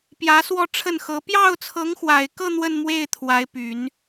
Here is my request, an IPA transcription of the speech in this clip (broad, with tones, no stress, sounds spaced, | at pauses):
p j ä˧˥ s w ɔ˥˧ ʈ͡ʂʰ ə˥˩ n x ɤ˧˥ p j ɑ˥˩ ʊ̯ t͡sʰ ɤ˧˥ ŋ x w a˨˩ ɪ̯ k ɤ˥˧ n̪ w ə˥˧ n m w e˥˩ ɪ̯ t̪ʰ w a˧˥ ɪ̯ p y˨˩˦ n